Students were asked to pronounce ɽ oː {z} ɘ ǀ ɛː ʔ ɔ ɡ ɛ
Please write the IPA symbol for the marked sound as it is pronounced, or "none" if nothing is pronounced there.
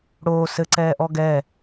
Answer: s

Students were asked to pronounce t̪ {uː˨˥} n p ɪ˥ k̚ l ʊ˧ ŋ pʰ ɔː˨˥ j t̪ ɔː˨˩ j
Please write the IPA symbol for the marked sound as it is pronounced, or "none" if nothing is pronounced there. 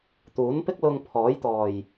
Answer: uː˨˥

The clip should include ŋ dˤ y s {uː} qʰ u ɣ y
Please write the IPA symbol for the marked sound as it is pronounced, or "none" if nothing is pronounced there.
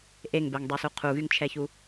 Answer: u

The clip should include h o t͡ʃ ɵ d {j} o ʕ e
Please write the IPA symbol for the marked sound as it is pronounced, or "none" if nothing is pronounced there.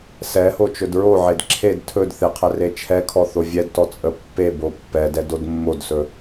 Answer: ɹ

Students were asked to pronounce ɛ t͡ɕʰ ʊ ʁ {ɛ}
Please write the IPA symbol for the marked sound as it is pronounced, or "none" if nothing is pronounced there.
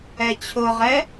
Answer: ɛ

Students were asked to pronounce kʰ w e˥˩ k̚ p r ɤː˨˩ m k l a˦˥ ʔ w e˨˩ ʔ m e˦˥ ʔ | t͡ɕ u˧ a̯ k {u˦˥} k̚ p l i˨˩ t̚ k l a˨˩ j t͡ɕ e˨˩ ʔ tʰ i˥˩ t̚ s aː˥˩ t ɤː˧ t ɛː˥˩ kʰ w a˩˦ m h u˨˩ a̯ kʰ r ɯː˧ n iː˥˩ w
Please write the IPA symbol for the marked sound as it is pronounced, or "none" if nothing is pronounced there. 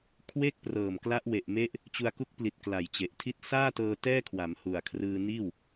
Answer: u˦˥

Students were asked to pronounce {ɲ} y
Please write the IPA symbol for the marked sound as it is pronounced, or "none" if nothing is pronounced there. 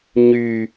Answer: ɲ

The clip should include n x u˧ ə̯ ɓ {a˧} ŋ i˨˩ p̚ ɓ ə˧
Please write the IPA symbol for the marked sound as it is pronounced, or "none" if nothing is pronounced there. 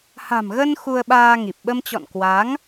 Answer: aː˧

